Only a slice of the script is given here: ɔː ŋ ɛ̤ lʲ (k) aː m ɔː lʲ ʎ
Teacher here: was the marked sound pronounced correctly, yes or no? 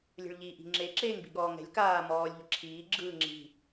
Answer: yes